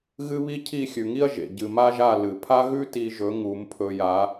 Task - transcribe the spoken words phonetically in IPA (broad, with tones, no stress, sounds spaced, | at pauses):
ɣ ɨ˦ β i˦ cʰ i˦˨ xʲ ʉ˨ ŋ i˦ ɐ̯ ʒ ḛ˨ ɟ ɨ˨ m a˦ ʒ a˦˨ l ɨ˨ pʰ a˦ ɣ ʉ˦ t i˧ ʒ ɵ˨˦ ŋ u˨˦ m pʰ ɵ˧ j a˨˦